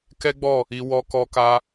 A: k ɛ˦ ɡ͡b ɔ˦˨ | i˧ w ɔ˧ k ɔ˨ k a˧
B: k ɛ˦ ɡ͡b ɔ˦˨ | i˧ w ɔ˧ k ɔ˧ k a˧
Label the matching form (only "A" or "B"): B